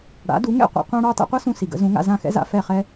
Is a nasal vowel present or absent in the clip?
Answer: present